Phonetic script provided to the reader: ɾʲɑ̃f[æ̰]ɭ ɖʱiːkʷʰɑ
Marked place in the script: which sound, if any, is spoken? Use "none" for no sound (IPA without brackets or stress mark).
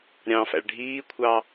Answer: æ̰